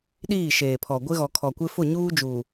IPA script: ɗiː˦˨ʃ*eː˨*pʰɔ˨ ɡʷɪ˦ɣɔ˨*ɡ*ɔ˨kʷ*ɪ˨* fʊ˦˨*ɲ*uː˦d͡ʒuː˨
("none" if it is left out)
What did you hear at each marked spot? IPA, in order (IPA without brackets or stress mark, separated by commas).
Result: eː˨, kʰ, ɪ˦, ɲ